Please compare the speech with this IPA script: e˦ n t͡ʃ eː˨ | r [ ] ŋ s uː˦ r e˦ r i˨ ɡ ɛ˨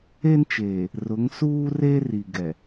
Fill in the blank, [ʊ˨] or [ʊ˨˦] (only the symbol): ʊ˨˦